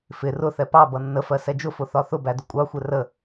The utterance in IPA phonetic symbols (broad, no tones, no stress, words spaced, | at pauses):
fɪ rʊθɛ pɑbʌ nːəfɜ sɛd͡ʒʊfʊ θɒθʊbæ dʊkʷʼɑxʷɛ rə